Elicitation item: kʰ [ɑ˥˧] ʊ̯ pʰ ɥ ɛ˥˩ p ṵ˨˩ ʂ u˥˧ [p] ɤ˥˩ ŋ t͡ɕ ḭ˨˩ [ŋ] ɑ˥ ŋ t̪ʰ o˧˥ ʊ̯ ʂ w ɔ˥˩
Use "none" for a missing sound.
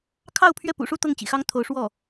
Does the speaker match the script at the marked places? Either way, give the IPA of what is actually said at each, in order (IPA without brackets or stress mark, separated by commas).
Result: ɑ˥˧, t̪, x